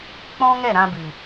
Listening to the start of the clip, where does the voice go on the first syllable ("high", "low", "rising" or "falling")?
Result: high